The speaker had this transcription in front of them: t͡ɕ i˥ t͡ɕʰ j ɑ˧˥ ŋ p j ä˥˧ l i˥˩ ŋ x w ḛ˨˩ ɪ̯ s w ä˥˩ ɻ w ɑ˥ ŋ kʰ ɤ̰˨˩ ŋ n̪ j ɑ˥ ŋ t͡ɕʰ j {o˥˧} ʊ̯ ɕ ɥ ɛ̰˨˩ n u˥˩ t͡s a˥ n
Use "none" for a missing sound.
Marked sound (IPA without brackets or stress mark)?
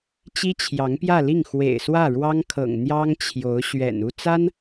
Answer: o˧˥